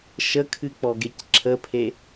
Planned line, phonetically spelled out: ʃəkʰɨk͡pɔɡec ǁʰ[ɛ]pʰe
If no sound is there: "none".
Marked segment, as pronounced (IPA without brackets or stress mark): ə